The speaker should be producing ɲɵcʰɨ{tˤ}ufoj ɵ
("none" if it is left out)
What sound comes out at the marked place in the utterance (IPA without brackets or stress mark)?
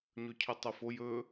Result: tˤ